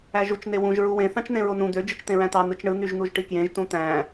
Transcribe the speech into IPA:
æ ʒ u t͡ʃ n e w ũ ʒ ɹ u w ẽ θ ɑ̃ t͡ʃ n ẽ ɹ o n ũ d̪ ø d͡ʒ ɯ t͡ʃ t̪ ẽ ɹ æ̃ t̪ ɑ n̪ ɯ t͡ʃ ɳ ɯ n̪ y ʒ n̪ u ʒ ʈ i k j ẽ ʒ t ũ t̪ æ̃

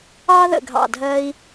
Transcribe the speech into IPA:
ɑ˥ ð ə̰˧˩ ɡʱ ɑ̰˧˩ dʱ ɜ˧ i̯

